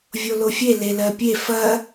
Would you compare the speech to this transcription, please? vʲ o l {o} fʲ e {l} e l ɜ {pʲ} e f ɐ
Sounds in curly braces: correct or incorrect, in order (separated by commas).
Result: correct, correct, correct